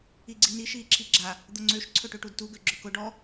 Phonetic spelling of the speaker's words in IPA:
i ɡ͡ǀ i n i ʃ iː ǁʰ i ɡ͡ǁ a | d̪ ʊ ŋ͡ǀ ø ʃ ǀʰ ɵ ʈ ø ʈ u d t u ɡ ø ɡ͡ǁ ɵ k ʊ ɖ ɔ

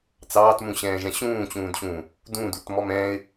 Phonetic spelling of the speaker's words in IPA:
t͡s ɑː t m ũ ɕ ɛ̃ː ʒ ɛ̃ ɕ ũː t͡ɕ ũː d ɕ ũː | d ũ d u t m ɔ m ɛ̃ː ɪ̯

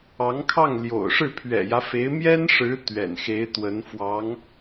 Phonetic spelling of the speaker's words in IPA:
ɑ˧˥ ŋ kʰ ɑ˥˩ ŋ l j o̰˨˩ ʊ̯ ʂ ɻ̩˥˩ pʰ ɥ ɛ̰˨˩ j ä˦ f e˧˥ ɪ̯ m j ɛ˥ n ʂ ɻ̩˧˥ t̪ ɥ ɛ̰˨˩ n x e˧˥ ɪ̯ t̪ w ə˧˥ n f w ɑ˧˥ ŋ

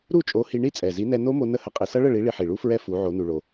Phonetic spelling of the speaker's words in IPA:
ɾ u˥˨ t͡ʃʼ o˨˥ h i˧ ɳ i˥˨ t͡sʼ ɛ˨˩ z i˨˥ n ɛ˧ n o˦˥ m o˧ n ə˦˥ h ə˨˥ qʼ i˧ s ʌ˦˥ ɭ ə˥˨ ɭ i˨˥ ɭ i˧ ħ i˨˩ ɭ u˦˥ f ɹ ɛ˦˥ f u˨˥ ʕ o˨˥ n u˧ ɭ o˧

